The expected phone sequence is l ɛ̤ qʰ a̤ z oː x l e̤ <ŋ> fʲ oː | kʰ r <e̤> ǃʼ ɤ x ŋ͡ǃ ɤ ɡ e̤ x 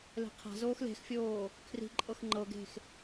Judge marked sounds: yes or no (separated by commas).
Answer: no, no